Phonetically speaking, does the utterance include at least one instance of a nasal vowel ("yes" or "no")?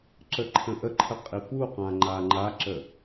yes